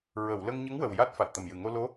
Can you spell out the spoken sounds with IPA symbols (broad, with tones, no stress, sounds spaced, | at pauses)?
ɹ ə˨˩˨ w l ə˧ ŋ ɲ ə˧˥ ŋ w ə˨˩ w j a˦˥ t̚ f a˨˩ t̚ t̪ ə˨˩ m j ɨ˨˩ ŋ o˧ l o˧˥